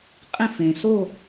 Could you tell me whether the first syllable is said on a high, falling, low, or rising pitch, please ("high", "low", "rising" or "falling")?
falling